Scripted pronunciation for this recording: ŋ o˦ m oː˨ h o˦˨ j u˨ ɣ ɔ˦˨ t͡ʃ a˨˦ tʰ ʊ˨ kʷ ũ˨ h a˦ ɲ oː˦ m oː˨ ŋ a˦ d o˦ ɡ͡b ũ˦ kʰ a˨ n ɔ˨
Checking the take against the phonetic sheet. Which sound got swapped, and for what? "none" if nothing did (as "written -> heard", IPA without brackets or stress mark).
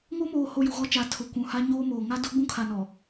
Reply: none